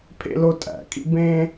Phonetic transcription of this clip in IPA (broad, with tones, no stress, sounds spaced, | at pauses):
pʰ ḛ˥ l o˥ tʼ æ̰˩ kʼ ḭ˥ b ẽ˥